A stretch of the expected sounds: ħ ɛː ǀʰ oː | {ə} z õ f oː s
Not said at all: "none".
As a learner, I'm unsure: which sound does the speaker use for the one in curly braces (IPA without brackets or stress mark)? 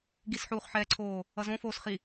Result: ʌ